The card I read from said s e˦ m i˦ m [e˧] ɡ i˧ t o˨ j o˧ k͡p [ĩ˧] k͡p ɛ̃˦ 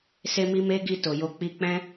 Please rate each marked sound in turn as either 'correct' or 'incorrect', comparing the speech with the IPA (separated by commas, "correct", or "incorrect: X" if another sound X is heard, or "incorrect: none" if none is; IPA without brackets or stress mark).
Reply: incorrect: e˦, incorrect: i˧